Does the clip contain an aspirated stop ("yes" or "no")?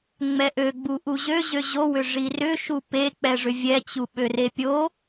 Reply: no